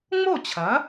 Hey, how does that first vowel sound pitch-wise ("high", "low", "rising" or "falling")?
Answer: falling